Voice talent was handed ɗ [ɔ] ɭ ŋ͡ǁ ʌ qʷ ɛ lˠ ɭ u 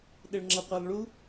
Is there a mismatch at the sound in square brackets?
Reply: yes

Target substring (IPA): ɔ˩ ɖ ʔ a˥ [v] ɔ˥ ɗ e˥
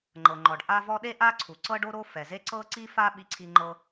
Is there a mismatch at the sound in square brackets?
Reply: no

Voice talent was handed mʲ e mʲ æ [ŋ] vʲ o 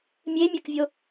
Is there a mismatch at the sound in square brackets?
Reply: yes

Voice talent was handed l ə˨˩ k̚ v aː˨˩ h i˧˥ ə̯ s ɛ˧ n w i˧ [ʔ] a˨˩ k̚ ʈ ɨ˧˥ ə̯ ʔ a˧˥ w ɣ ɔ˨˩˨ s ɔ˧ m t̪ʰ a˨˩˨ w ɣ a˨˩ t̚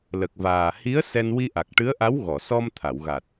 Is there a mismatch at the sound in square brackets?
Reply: no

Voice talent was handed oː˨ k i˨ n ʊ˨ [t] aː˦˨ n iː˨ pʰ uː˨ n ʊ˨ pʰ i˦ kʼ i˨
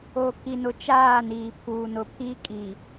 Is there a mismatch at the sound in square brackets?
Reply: yes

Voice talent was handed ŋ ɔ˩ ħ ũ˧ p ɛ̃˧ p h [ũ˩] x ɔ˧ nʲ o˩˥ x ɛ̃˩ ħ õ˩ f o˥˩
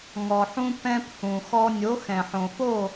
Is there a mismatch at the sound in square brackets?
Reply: no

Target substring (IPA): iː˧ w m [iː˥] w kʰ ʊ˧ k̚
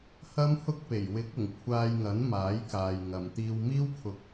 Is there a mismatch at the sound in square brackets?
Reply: no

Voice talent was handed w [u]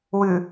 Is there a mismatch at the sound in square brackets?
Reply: yes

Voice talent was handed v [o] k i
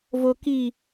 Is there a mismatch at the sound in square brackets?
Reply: no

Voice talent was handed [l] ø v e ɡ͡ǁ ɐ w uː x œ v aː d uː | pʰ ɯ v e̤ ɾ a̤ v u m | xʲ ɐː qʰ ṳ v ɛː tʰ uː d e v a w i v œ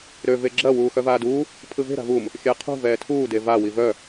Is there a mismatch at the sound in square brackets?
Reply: yes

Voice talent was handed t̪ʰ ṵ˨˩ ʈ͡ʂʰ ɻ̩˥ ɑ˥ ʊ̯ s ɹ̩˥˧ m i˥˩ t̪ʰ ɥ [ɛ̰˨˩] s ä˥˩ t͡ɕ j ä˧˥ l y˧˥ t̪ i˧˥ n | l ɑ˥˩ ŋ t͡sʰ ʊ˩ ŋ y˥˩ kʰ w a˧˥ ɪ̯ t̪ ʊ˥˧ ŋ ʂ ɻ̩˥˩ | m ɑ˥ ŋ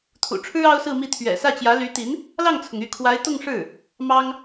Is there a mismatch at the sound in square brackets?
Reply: no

